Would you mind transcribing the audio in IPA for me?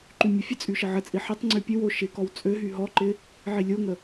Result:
ǃ y mʲ ə fʲ ə t͡sʼ y ʃ ə ʕ ə t͡sʼ i ħ ə tˤ ŋ͡ǀ y pʲ ə w o ʃ ɪ k ɔ w t͡sʼ ø ɦ y ɦ ɔ ǃ ɪ | ʕ i lʲ o ŋ ə

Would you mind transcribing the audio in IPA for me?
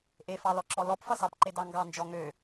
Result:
ʔ e f ɑ l ɔ ǁ ɔ l ɔ p f ʌ s ɑ p ǃ e d ɑ ŋ ɡ ɑ n d͡ʒ ɔ ŋ ø

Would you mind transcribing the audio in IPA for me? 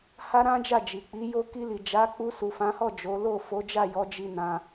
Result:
h a˦ ɾ ã˦ d͡ʒ a˦˨ d͡ʒ i˨ k͡p i˨˦ j o˧ k i˧ l i˨ d͡ʒ a˨˦ k͡p u˧ s u˨ f ã˨˦ h ɔ˦˨ d͡ʒ o˨˦ l o˦˨ f o˨˦ d͡ʒ a˦˨ j ɔ˨˦ d͡ʒ i˧ n ã˧

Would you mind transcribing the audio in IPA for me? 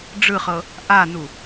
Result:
ɖ͡ʐ ɯ χ ɤ | ʔ a n u

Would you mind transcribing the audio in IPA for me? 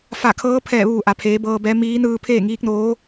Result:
f a˧˩ kʰ ɤː˧˥ pʰ ɛː˧˩ ʋ uː˧˩ ʔ a˩ pʰ eː˩˧ b ɤː˧ b ɛː˧˥ m iː˧˥ n ɯː˧ pʰ eː˥˨ ŋ iː˧˥ k̚ n oː˧˥

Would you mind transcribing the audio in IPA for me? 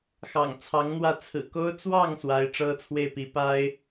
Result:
x ɑ̰˨˩ ŋ t͡sʰ ɑ˧˥ ŋ n̪ w ä˥˩ t͡sʰ ɹ̩˨˩ k o˥ ʊ̯ t͡s w ɑ˥˩ ŋ s w a˧˥ ɪ̯ ʈ͡ʂ ɤ˥ t͡sʰ w e˥˩ ɪ̯ p i˧˥ p a˥ ɪ̯

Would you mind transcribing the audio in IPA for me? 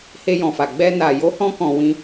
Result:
h e˧ j ɔ̃˨ f a˨ ɡ͡b ɛ˧ n a˨ j o˨˦ h ɔ̃˧ k ɔ̃˨ w ĩ˧

